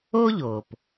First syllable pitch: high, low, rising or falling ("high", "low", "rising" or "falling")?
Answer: high